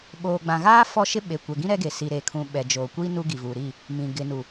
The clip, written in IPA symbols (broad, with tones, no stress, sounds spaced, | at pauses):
ɓ oː˨ ɡ͡b ã˨ ɣ aː˦ f ɔ˦ ʃ ɪ˦ ɓ e˨ kʷ ɛ˨ ɡ ĩ˦ ɾ ɛ˦ ɡ e˨ s i˨ ɾ eː˨ kʰ ũ˨ ɓ ɛ˨ d͡ʒ oː˨ kʷ iː˦ n u˦ ɡ i˨ v uː˨ ɾ i˦˨ | m ĩ˨ ɡ ɪ˨ n u˨